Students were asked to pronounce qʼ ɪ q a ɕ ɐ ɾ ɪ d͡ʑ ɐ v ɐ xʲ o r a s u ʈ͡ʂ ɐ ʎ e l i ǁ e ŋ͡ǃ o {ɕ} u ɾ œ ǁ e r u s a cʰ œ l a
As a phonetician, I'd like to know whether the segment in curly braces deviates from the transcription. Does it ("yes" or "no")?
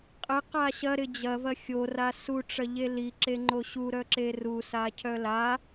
no